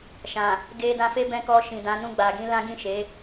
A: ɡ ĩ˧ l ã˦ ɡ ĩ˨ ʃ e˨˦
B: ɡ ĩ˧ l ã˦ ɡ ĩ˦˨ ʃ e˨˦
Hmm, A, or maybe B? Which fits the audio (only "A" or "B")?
B